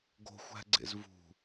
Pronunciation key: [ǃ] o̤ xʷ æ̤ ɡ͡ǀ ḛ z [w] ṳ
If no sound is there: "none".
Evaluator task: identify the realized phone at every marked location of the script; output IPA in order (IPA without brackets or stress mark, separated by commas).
ɡ, v